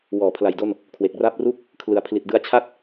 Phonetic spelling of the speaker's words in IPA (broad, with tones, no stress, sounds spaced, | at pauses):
w ɔː˨˩ pʰ l a˨˩ j d o˥˩ n | kʰ w e˨˩ k̚ r a˥˩ p̚ r u˥˩ k̚ | kʰ l ɯ˩˦ a̯ pʰ l i˨˩ t̚ d ɯ˧ a̯ t͡ɕʰ a˥˩ t̚